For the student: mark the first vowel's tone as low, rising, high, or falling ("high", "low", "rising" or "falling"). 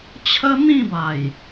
high